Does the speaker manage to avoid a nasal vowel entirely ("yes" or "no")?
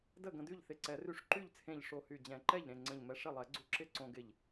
no